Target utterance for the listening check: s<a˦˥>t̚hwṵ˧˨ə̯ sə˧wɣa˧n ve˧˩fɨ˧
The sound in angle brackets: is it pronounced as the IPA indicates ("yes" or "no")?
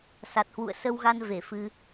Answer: no